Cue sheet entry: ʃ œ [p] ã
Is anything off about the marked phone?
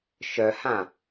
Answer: yes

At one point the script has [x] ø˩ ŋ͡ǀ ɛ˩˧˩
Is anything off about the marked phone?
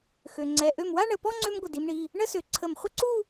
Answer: no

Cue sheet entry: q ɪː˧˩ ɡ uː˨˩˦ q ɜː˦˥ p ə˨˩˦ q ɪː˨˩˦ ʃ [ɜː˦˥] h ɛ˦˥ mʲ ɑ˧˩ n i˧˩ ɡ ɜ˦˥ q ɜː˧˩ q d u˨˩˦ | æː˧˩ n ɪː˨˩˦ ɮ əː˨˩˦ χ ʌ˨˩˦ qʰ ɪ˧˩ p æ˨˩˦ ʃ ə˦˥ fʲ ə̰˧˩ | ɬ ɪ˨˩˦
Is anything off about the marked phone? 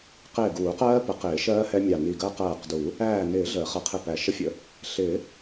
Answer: no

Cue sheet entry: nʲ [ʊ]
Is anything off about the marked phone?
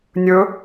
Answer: yes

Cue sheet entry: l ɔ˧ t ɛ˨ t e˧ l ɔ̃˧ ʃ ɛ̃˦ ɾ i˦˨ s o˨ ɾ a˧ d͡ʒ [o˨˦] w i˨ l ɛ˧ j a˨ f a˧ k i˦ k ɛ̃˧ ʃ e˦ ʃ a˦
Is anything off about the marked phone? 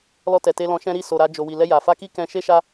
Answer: yes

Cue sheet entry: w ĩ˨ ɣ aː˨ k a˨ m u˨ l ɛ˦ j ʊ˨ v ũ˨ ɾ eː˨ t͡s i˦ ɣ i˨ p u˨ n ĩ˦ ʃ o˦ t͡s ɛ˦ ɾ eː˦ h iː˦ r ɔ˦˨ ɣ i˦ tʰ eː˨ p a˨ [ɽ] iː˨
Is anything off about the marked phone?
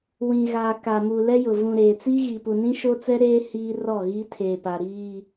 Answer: yes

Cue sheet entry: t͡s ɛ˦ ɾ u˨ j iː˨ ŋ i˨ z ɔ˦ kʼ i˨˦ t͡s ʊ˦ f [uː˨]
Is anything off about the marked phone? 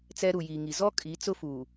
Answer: no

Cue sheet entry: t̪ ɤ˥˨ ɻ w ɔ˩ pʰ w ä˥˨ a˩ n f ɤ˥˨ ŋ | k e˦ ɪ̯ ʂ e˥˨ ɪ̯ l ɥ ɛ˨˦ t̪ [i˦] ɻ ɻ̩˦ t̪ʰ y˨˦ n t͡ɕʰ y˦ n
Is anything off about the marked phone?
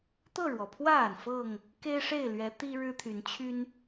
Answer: no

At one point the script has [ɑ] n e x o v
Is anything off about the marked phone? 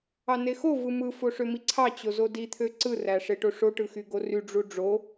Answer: no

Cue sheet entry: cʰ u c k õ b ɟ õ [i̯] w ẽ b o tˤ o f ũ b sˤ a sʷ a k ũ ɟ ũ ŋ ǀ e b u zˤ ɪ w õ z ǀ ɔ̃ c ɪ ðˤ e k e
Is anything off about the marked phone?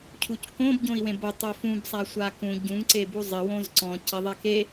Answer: no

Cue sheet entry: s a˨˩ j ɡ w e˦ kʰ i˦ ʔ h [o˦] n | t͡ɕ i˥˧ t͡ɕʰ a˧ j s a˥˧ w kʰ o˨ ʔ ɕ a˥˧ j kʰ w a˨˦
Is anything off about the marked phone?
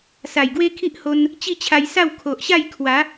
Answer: yes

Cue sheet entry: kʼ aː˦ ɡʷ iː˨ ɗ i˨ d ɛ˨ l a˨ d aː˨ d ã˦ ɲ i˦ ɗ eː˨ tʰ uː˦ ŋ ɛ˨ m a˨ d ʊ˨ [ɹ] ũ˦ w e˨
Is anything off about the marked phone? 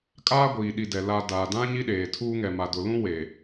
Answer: yes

